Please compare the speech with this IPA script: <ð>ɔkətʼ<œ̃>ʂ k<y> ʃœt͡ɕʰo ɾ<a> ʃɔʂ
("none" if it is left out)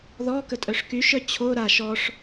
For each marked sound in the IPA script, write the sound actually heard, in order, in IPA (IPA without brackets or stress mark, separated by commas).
ð, œ, y, a